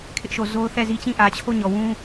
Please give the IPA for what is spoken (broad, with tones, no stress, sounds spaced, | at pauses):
kʰ ɪ˦ ʔ ʃ o˨ z o˦ ʊ̯ θ ɛ˦˨ z i˦ t͡ɕ ĩ˦˨ ʔ ä˨ t͡ɕʰ o˦˨ ɲ ɔ˨ w ũ˦